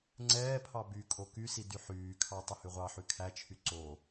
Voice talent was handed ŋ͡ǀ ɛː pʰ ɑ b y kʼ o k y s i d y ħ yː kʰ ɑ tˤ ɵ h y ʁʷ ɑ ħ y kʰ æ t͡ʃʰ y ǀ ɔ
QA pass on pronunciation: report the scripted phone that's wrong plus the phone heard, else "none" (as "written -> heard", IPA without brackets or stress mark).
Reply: ɔ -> o